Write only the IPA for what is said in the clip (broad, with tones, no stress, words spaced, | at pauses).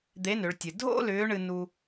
d̪e˧˥nʏ˩˧ɭtʲɨ˩ dʱo̰˥ lʏː˧˥ ɳɨ˧nu˧